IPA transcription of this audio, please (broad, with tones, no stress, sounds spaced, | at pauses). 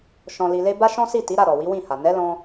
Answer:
ʃ ɔ̃˨ l i˨ l e˧ b a˦ ʃ ɔ̃˦ s i˦˨ t i˨˦ ɾ a˦˨ ɾ ɔ˨ w i˨˦ w ĩ˦˨ h a˨ n ɛ˨˦ l ɔ̃˧